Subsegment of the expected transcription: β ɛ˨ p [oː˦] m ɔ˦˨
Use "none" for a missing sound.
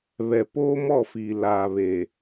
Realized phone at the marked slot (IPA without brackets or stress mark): oː˦